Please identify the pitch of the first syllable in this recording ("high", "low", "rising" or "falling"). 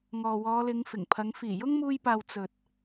low